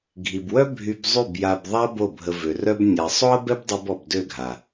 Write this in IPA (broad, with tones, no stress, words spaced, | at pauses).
ɡʱi˨bwœ˦ bʱy˧b zˤy˦˨bja˧bðˤa˦ bo˦˨bʱə˧vø˨rœ˦b nʲa˨ sˤo˦ɐ̯bɛ˦bdˤu˧bɔ˨b dø˦˨ɡʱa˨